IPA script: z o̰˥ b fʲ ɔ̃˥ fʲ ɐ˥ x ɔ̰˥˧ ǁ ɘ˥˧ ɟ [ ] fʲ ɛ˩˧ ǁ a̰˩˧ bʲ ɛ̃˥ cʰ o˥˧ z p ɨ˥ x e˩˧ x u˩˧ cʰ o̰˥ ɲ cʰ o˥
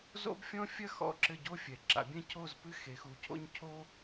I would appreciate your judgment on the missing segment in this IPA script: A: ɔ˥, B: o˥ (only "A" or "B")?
B